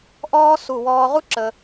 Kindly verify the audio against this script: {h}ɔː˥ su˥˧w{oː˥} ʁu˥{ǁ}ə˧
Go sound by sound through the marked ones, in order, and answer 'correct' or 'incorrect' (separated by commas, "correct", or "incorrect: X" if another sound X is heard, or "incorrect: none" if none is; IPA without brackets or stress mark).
incorrect: ʔ, incorrect: ɔː˥, correct